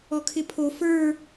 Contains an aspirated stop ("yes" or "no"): yes